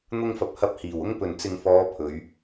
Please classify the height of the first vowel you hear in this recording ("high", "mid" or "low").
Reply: high